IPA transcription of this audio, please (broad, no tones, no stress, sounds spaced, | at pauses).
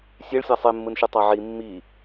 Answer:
sʲ e ɭ sʲ æ sˤ e mː ɯ n ʃ ɯ tˤ ɑ ʕ i mː i